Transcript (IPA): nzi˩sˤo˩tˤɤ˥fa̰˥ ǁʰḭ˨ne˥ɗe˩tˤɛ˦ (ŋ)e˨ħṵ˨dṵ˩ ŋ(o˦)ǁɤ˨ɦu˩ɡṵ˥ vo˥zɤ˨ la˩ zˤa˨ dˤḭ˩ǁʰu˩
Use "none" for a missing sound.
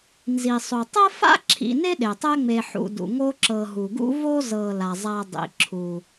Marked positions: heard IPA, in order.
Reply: ŋ͡m, o˦

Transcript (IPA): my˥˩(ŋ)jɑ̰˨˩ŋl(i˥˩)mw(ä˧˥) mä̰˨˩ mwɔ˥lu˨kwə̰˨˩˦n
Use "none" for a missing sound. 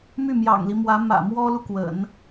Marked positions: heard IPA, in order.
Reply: m, i˦, ä˧˥

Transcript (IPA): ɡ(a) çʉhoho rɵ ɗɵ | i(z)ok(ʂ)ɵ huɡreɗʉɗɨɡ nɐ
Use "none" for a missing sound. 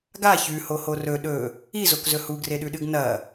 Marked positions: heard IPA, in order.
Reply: a, z, z

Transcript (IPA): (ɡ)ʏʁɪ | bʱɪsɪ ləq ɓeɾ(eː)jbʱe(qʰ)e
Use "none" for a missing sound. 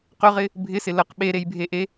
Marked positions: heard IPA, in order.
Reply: q, e, ʔ

